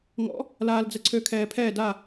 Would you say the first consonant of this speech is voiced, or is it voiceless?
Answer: voiced